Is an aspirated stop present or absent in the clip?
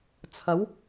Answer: present